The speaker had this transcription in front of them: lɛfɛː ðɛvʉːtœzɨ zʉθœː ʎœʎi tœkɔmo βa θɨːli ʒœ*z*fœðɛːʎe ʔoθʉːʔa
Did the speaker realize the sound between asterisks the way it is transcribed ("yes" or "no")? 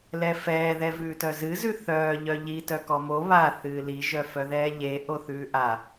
no